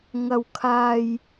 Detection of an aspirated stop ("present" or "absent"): present